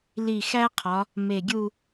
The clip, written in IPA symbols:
li˧˩xæ˥qʰɒ˩˧ | me˧˩ɡʲu˥˧

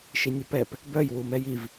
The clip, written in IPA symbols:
ʃinʲʊpɛp | bœj wumɛjiv

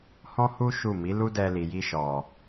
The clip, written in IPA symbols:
hɔ̃˦hu˦ ʃu˦˨ mi˨˦lu˦ dɛ˧li˨ji˧ ʃɔ˨

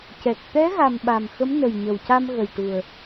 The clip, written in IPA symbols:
cɛ˨˩k̚ t̪ɛ˧˥ ɣa˨˩m ɓa˨˩mxə˧˥m nə˨˩jɲə˨˩wca˧mɣə˨˩j ʈu˨˩ə̯

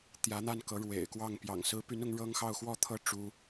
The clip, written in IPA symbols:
t̪jä˧˥n̪a˥˩n kɤ˧˥ɻwḛ˨˩ɪ̯kwɑ˥˩ŋ pjɑ̰˨˩ŋsɹ̩˧˥py˧˥n ʊ˧˥ŋɻɤ˥ŋxɑ˥˧ʊ̯ xwɔ˥˧t̪ʰɤ˥˩ ʈ͡ʂu˥

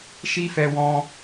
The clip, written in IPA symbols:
ʃi˦fɛ˧wɔ̃˧

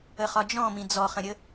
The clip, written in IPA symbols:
əχɒd͡ʒɔ̃mĩ d͡zɔχə̃ɾʲə

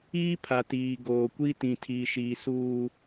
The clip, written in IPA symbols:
iː˦pʰa˨tiː˨ ɡoː˨kʷi˦ tĩ˨tʰiː˨ʃiː˨suː˨

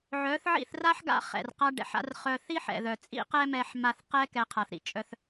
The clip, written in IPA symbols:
ʕœ˨˦θʕḭ˦˨θ ra˦ħɡa̰˧ χɛ̰˨rqa˧ɖɛ̰˨ħa̰˧r χœ˧ θi˦ħɛ̰˨ðœ˨ t͡sʼḭ˦qɛ˦ mɛ˧ħ ma˧θqɛ˦ kɛ˧qʰa˨θɾḭ˨t͡ʃʼœ˧θ

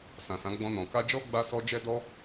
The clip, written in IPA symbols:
sã˨sã˨˦ ɡ͡bɔ̃˧nɔ̃˨ ka˧d͡ʒɔ˦ ɡ͡ba˦sɔ˦ d͡ʒɛ˦dɔ˦

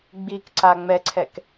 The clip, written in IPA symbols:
ɡ͡bikǀa ŋ͡mɛǀʰɛk

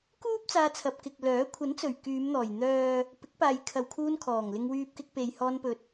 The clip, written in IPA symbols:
kuː˥p̚ t͡saː˧t͡sʰɐ˨p̚ kɪ˨k̚lœː˨˥ kʷʰɐ˨˥nt͡sɵ˨˩ɥ kyː˨˧mn̪ɔː˨˩j n̪œː˨ | pɪ˨˥k̚paː˨jkʰɐ˨wkʰuː˧n kʰɔː˨˩ŋlɪ˧ŋwyː˧p̚kɪ˧k̚ pe˨jhɔː˧npɵ˨˥t̚

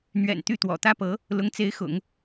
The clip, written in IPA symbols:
n̪ɥɛ̰˨˩nt̪y˥˩t̪wɔ̰˨˩ t̪ä˥pɤ˧˥ | lʊ˧˥ŋt͡se˧˥ɪ̯xʊ̰˨˩˦ŋ

